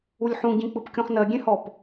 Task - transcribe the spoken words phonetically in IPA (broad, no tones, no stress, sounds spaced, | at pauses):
u lʲ ħ ũ ɟ ĩ k͡p ɯ p kʲ õ χ n ɜ ɡʲ ẽ h ɔ p